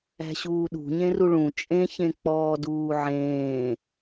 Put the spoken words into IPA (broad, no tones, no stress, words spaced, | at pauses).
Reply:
æ̤ɕuːɗṳ ɲẽruɭũ t͡ʃʼẽçẽ k͡pɔːduːʕẽː